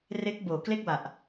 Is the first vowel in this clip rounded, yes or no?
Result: no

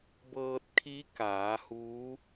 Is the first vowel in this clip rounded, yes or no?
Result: no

